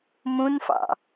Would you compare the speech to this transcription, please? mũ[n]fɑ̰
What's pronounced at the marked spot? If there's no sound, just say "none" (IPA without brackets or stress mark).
n